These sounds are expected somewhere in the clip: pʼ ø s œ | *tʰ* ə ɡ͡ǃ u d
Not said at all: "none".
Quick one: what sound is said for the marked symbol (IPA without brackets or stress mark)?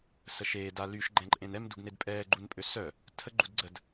tʰ